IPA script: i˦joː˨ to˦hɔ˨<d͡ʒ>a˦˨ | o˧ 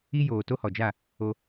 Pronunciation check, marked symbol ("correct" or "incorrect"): correct